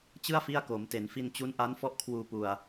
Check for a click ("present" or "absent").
absent